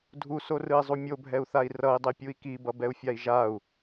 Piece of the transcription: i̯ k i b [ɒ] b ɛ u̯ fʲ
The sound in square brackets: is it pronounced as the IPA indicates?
no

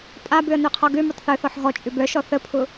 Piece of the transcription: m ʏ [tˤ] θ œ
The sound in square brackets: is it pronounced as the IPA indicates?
yes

